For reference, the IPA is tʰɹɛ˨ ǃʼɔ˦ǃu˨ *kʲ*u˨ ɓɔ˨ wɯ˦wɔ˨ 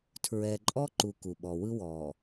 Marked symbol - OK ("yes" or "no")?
no